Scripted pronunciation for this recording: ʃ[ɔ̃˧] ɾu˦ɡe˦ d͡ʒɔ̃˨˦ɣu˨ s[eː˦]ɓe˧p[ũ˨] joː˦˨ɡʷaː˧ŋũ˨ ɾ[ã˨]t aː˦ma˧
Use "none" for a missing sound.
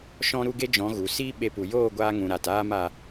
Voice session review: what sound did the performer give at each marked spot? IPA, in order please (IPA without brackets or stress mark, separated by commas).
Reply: ɔ̃˦, iː˦, u˨, a˨